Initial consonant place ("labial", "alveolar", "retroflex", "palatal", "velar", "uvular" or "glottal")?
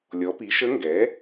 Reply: alveolar